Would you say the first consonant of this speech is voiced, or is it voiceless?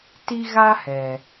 voiceless